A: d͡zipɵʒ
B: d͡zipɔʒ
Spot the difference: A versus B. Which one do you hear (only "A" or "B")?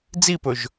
A